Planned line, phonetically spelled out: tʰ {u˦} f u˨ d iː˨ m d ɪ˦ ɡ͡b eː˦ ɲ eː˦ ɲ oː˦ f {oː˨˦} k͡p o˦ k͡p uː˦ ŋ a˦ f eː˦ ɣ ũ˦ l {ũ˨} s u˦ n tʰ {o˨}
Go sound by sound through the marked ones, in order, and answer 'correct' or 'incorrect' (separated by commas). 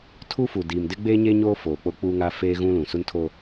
correct, incorrect, correct, incorrect